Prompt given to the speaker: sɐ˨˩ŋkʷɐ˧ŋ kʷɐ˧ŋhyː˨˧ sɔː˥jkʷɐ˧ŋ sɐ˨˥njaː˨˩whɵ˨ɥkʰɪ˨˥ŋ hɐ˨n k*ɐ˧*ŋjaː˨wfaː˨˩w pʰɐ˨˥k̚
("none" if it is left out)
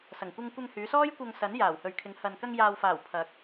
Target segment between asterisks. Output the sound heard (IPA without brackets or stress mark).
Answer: ɐ˧